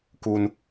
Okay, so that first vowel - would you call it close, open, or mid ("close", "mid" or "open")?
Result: close